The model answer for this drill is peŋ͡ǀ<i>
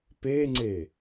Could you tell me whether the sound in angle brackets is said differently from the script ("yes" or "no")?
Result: yes